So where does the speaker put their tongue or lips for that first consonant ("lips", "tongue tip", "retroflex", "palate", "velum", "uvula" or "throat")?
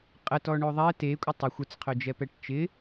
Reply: uvula